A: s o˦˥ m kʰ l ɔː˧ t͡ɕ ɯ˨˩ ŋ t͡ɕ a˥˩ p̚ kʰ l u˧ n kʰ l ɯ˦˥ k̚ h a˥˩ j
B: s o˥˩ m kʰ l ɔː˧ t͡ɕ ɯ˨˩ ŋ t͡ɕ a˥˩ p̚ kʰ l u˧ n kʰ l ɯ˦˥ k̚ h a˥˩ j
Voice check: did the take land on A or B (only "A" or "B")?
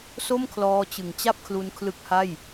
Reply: B